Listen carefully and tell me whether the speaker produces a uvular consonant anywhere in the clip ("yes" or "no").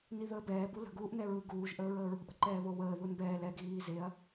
no